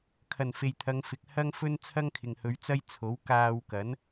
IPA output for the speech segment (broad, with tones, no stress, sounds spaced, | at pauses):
kʰ ɐ˨˩ n f e˨ j t̪ʰ ɐ˨˧ ŋ f ɪ˨ k̚ h ɐ˥ ŋ f ɵ˥ n t͡sʰ ɐ˥ ŋ kʰ ɪ˨ ŋ h ɵ˨˧ ɥ t͡s ɐ˥ j t͡sʰ o˨˥ w k aː˧ w k ɐ˨˥ n